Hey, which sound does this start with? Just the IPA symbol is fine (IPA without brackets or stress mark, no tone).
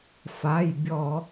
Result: f